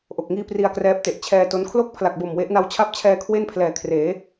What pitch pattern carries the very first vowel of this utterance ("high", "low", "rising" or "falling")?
low